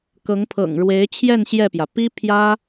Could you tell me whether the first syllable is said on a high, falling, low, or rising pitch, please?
rising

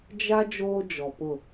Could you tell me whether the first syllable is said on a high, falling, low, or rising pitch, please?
high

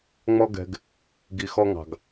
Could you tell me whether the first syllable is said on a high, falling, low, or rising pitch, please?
high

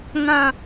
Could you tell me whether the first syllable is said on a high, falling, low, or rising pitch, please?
falling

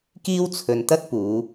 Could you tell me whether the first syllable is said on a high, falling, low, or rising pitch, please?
high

